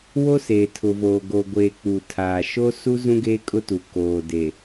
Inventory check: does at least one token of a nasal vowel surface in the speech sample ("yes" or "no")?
yes